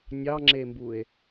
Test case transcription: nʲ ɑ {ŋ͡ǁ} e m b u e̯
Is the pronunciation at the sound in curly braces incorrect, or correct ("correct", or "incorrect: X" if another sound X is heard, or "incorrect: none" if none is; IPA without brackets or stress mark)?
correct